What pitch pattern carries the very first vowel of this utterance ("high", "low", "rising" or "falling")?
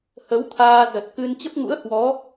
rising